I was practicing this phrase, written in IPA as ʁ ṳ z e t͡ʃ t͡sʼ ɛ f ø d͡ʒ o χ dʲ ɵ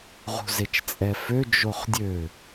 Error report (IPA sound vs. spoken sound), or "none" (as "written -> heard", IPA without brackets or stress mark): ɵ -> ø